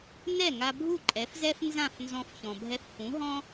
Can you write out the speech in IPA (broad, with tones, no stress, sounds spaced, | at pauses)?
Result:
n ɛ˥˩ ŋ a˧ bʱ u˥˩ ǃʼ ɛ˩˥ f z ɛ˥ f n z ã˥˩ f n z ɔ̃˧ f ç ɔ̃˩ bʱ ɛ˧ f h ũ˩˥ ɦ ɔ̃˥